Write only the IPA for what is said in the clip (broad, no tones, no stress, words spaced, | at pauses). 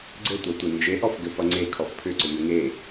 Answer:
ɡ͡ǀɘtʷatʷe nd͡ʒeʔɔfɡɘ fʌŋ͡ǀe kʰɔfpʰʏǀʏ n̪ɘŋe